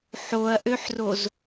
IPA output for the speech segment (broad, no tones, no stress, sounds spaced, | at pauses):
ħ o ɐ̯ ʔ ø ħ r o z